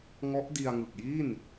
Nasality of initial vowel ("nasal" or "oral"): oral